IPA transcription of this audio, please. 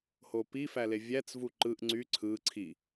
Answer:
h o p i f æ l e vʲ æ t͡s v u ǃ ɯ ʔ ŋ͡ǀ y ǀʰ ɯ ǀʰ i

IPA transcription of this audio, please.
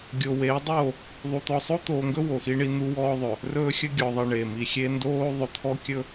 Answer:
ɡʲ o˨ w eː˨˦ dˤ oː˦˨ | ðˤ u˨ t̪ ɔ˨ sˤ o˦ t̪ oː˨ ŋ ɡ ɵ˦ w o˨ x i˦ ɳ i˦ n̪ u˦ w ɔː˦ ðˤ ɵ˨ | r ɵː˦ xʲ ɵ˦ ɡʲ ɔː˨ ðˤ i˨ ɳ e˨ m i˨ xʲ e˦ n d oː˦ ðˤ ɵ˨ t̪ʰ ɔ˦ kʲ ɵ˦

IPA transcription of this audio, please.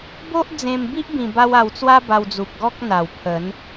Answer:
b o˦ ʔ d͡z ẽ˧ m b i˦ ʔ b ĩ˧ b a˦ w a˧ w t͡s w a˦ b a˧ w d͡z u˨ p̚ ɡ ɔ˦ k̚ n̪ a˨˩ w pʰ ə˨˦ n

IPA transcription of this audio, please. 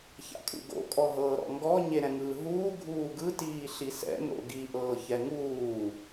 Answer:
ç a̰ kʼ ṵ ɡ o̰ kʼ ɔ ɦ ɤː ɾ ɔ̰ ŋ ɡ ɔ ɲ e ɾ ɛ̃ ŋ ɯː ɦ uː ɡʱ uː ɡ ɯ t iː ɬ i s ɛ̰ n o̰ ɡ i ʔ ɤː ç ɛ ŋ uː

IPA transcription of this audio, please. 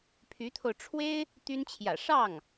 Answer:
pʰ y˧˥ t̪ʰ o˧ ʊ̯ ʈ͡ʂʰ w e˥ ɪ̯ | t̪ y˥ n t͡ɕʰ j ä̰˨˩ ʂ ɑ˥˩ ŋ

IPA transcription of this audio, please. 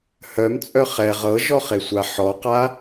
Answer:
h œ m t͡sʼ œ χ ɛ ʁ ɤ ʒ ɔ χ e sʷ a ħ ɔ q a

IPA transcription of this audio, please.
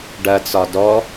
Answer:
ɖ ɐ t͡s ɒ d ɔ

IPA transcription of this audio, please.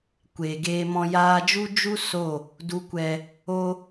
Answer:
kʷ eː˨ ɡ eː˧ m ɔ̃˧ j aː˧ d͡ʒ u˦ d͡ʒ u˦ s o˦˨ | d u˨ kʷ ɛ˨ | o˦

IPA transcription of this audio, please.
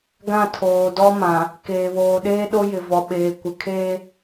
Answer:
ɡ ã˦˨ tʰ oː˨ d ɔ˦ m ã˨ | k eː˨ β oː˨ ɗ eː˦ ɗ o˦ j ɪ˨ v ɔ˨ ɓ eː˨ kʷ ɪ˨ kʰ eː˦

